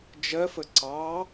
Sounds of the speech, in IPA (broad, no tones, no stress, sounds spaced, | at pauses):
d͡ʒ ɜ f ə ǀ ɑ